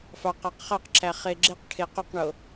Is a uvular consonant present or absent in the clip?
present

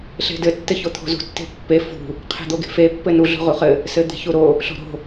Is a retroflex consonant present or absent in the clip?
absent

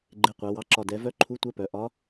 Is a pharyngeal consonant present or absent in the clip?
absent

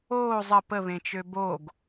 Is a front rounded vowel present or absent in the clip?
present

